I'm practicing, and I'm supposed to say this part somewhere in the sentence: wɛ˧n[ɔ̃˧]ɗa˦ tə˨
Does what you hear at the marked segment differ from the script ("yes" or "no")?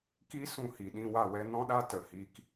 yes